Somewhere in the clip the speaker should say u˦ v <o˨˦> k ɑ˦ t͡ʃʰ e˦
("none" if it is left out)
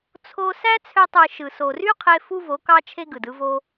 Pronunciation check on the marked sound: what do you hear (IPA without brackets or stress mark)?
o˨˦